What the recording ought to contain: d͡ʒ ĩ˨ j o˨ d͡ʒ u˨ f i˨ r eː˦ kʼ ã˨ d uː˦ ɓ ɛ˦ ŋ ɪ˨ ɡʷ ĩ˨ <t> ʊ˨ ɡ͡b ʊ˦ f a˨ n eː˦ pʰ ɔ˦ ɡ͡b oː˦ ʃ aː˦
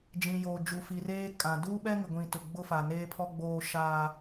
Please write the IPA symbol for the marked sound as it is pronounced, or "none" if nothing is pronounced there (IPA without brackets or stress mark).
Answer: t